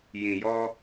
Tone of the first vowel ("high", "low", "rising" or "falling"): low